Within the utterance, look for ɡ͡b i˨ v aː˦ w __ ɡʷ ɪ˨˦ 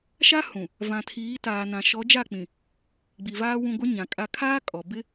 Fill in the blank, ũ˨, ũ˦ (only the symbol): ũ˨